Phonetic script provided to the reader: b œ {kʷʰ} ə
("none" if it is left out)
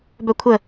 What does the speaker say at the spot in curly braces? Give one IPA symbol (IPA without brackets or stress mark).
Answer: kʷʰ